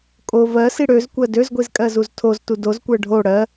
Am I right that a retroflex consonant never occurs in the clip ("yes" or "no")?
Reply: no